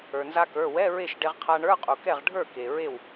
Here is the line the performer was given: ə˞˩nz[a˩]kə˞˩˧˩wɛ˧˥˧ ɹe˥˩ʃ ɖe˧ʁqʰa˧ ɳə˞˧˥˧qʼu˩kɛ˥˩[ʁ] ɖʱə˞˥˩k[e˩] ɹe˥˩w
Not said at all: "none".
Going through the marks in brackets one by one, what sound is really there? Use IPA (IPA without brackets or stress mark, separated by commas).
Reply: a˧, ʁ, e˩